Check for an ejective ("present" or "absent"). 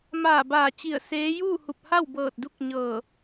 absent